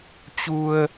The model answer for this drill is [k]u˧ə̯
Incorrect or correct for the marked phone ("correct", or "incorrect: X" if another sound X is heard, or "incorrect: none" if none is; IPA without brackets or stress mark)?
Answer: incorrect: t͡ɕ